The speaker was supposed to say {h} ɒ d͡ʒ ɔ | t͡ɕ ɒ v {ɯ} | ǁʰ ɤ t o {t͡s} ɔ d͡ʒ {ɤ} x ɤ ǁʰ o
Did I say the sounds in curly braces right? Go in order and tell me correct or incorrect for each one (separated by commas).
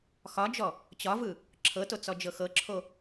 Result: incorrect, correct, correct, correct